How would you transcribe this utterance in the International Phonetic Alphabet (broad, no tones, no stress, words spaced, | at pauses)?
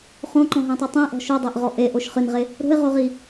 χõǃɔ̃ɦãtˤo tˤɛ̃ʔɔ̤ ʃodˤaʔʁɔ ʔeʔoʃ χɨnʁe | ɾo̤ɪ̯ʁoʁi